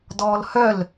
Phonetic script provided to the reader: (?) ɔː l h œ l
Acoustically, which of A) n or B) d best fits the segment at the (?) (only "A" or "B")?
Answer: B